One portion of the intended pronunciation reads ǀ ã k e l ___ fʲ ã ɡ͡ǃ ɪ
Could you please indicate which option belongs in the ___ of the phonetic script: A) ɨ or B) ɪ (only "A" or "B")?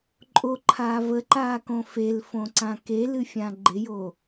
A